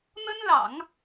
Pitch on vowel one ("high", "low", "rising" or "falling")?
high